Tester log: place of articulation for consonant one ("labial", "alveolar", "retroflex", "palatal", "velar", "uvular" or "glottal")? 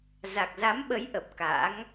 alveolar